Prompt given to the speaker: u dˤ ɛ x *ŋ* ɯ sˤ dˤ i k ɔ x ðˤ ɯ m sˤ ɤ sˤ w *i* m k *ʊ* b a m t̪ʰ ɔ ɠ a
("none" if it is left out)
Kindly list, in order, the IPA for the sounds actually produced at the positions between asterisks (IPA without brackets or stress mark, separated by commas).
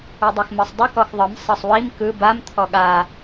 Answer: m, i, ɯ